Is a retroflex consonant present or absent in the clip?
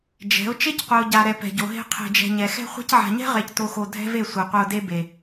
absent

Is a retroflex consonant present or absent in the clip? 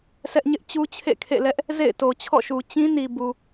absent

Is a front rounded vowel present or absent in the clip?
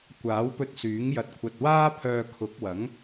present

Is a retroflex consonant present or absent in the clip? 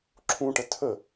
present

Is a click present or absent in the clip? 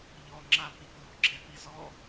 present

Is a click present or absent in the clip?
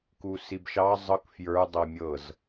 absent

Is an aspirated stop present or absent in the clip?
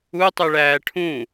present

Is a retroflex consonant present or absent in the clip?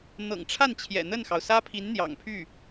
present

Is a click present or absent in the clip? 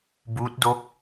absent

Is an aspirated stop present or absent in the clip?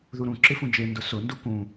absent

